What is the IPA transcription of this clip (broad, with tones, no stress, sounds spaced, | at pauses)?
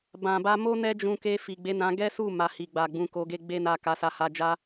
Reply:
b ã˨ b a˧ m o˦ n ɛ˦ d͡ʒ ũ˧ k e˧ f i˨ ɡ͡b e˨˦ n ã˧ ɡ ɛ˦ s u˦˨ m a˨ h i˨ ɡ͡b a˨ ɡ͡b ũ˨˦ k o˧ ɡ e˦ ɡ͡b e˦ n a˦˨ k a˧ s a˧ h a˧ d͡ʒ a˦